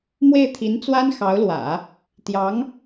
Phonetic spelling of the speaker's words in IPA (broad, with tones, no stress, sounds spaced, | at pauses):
m w e˥˩ ɪ̯ t̪ʰ i˧˥ n t͡s w a˥ n x ɑ˧˥ ʊ̯ l w ä̰˨˩˦ | t̪ j ɑ˧˥ ŋ